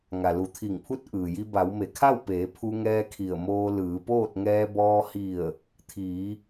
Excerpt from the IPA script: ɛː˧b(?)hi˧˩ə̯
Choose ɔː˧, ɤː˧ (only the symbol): ɔː˧